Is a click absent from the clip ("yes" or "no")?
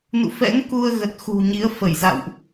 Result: yes